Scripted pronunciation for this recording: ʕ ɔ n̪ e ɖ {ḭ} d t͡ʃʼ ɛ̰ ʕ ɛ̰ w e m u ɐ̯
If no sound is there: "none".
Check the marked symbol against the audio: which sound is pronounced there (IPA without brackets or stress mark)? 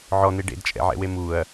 ḛ